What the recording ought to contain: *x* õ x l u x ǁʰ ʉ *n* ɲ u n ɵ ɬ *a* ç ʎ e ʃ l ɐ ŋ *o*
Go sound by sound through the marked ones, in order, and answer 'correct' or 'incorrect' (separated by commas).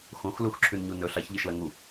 correct, correct, correct, incorrect